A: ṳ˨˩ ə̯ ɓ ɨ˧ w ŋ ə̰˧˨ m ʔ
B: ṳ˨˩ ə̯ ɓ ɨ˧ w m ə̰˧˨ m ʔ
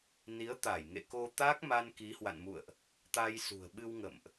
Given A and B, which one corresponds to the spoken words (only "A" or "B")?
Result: A